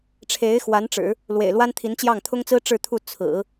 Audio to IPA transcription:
ʈ͡ʂʰ e˧˥ ɪ̯ x w a˧˥ n ʈ͡ʂ ɻ̩˨˩˦ | l w ḛ˨˩ ɪ̯ l w a˥ n t̪ʰ i˧˥ n t͡ɕ j ɑ˥˩ ŋ t̪ʰ ʊ˥ ŋ t͡s ɹ̩˥ ʈ͡ʂ ɻ̩˥˧ t̪ʰ u˥˩ t͡sʰ ɹ̩˨˩˦

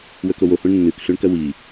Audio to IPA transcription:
w ɵ k o w o h ũ ɳ nː ʉ k ɬ ʉ ɳ k ɐ w i

